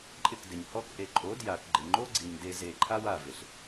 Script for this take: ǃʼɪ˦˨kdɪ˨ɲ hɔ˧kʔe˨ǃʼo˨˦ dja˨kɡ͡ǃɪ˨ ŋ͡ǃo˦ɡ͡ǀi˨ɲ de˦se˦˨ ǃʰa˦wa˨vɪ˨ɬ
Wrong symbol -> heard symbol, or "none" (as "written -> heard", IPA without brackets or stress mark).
s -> z